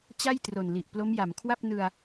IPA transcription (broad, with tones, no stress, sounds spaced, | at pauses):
t͡ɕ a˥˩ j t r o˨˩ n l i˨˩ ʔ p l o˦˥ m j a˩˦ m kʰ w a˥˩ p̚ n ɯ˧ a̯